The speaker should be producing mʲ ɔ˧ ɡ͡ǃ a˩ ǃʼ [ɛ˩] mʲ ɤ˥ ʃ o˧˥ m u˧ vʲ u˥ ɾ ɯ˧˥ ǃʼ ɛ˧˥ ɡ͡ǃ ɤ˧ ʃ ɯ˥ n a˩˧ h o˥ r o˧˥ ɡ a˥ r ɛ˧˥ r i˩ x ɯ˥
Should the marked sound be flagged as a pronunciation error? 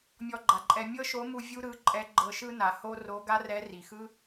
yes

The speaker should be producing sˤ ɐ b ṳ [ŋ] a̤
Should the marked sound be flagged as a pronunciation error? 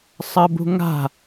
no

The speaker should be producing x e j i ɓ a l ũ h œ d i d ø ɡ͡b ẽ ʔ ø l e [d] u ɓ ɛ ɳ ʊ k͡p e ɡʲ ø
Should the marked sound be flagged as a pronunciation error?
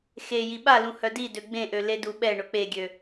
no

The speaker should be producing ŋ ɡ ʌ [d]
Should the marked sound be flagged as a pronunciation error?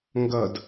no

